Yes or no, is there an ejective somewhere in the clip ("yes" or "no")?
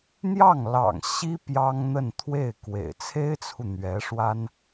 no